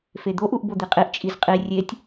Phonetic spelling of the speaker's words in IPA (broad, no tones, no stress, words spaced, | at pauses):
fed̪oʔ uʔbod̪iqʼiʔ t͡ʃʼizqʼi rʲetʲ